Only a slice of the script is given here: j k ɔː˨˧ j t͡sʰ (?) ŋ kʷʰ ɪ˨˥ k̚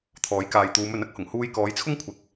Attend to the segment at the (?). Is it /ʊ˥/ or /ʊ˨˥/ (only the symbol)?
ʊ˥